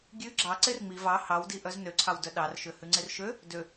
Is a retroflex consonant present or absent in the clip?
absent